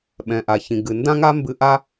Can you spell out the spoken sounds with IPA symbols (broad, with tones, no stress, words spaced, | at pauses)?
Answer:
ɓɛ̃˩ʔa˩çĩ˩ ɡɨ˩ndã˥ŋa˥ mbɨ˥ ʔa˥